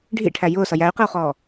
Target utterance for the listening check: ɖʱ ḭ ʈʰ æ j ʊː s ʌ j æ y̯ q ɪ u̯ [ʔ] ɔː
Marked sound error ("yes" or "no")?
yes